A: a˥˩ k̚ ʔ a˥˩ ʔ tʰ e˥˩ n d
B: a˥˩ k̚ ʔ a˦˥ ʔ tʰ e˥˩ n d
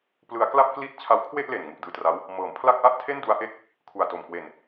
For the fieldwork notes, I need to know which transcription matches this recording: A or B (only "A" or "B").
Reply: A